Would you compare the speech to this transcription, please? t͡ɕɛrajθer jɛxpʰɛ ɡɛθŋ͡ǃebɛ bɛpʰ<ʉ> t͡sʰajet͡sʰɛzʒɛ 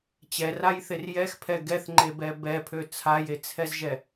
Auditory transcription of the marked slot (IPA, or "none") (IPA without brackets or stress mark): ø